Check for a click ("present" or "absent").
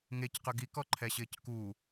present